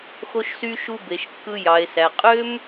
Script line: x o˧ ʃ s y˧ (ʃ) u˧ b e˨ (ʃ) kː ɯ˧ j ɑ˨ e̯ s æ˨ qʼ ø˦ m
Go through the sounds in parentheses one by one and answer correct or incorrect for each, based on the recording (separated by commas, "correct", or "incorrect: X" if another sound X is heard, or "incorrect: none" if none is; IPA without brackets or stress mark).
correct, correct